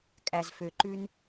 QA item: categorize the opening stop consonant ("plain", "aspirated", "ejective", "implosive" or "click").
ejective